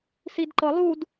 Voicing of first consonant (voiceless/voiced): voiceless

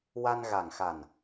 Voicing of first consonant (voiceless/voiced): voiced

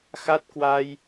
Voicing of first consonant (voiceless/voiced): voiceless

